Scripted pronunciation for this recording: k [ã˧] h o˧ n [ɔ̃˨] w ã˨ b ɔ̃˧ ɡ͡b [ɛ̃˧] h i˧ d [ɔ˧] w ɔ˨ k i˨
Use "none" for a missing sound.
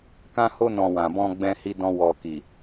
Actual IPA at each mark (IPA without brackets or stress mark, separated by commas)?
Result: ã˧, ɔ̃˨, ɛ̃˧, ɔ̃˧